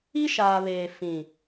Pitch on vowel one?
high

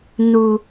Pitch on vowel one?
high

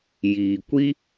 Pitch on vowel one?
low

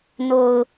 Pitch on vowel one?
low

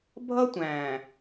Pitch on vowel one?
high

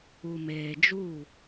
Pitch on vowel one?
low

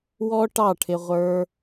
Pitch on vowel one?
high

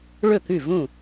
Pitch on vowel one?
falling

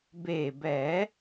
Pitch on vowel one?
low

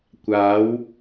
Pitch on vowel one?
rising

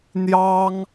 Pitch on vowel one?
high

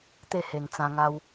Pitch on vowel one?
falling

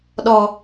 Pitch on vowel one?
low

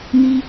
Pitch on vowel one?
high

